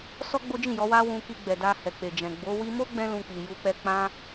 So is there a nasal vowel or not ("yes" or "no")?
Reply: yes